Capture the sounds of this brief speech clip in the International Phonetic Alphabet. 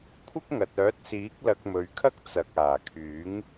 kʷʰ ɪ˥ k̚ ŋ ɐ˨ t̚ œː˨˥ t̚ s iː˨˥ k̚ l ɐ˧ k̚ m ɵ˨ ɥ kʰ ɐ˥ k̚ t͡s ɐ˨ k̚ aː˨˩ kʰ yː˨˥ ŋ

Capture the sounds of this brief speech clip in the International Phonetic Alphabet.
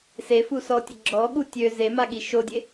s e f u s ɔ tʲ ə ɡ͡ǁ ɔ ɠ u tʲ ø z e m a ɠ i ʃ o dʲ e

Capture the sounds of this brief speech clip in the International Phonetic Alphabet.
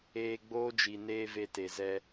eː˧ ɡ͡b oː˦ d͡ʒ i˨ n eː˧ v e˧ t e˨ z ɛ˧

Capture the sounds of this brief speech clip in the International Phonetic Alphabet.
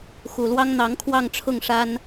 x u˨˩ l w ɑ˥ ŋ n̪ ɑ˧˥ ŋ kʰ w ɑ˥˧ ŋ ʈ͡ʂʰ ʊ˥˩ ŋ ʂ a˥ n

